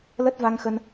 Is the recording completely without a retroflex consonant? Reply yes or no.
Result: yes